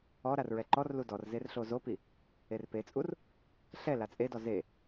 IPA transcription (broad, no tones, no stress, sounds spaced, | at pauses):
ɔ ɾ a r ɹ ɛ ǃ ɔ r l u d ɔ r z e r ɬ o z o p i | e r p e t͡sʼ u r | ɬ ɛ l a t͡sʼ e d ɔ z e